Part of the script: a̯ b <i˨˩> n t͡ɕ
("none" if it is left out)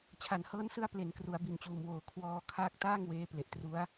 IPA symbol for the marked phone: i˨˩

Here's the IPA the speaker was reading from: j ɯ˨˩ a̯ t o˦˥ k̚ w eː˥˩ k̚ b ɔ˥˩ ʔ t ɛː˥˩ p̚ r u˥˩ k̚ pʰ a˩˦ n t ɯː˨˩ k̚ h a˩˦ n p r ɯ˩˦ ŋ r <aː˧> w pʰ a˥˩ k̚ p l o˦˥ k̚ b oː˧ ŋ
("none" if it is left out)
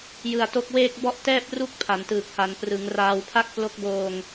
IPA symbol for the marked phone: aː˧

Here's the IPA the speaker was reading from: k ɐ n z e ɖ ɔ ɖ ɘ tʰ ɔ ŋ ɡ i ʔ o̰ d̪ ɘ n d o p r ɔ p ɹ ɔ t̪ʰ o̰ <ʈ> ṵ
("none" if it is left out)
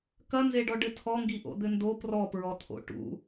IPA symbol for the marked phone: ʈ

